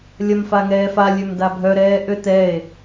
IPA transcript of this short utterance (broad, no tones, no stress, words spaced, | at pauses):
lʲɐmfaŋɛːfa lʲømdabʱœ ɾɛːʔøtɛe̯